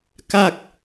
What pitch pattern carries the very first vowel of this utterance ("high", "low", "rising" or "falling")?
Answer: falling